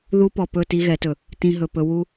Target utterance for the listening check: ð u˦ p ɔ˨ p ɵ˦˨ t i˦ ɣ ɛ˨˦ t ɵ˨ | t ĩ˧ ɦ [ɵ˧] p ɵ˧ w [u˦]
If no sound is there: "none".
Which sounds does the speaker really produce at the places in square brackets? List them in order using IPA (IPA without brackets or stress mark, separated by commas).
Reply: ɵ˨, u˦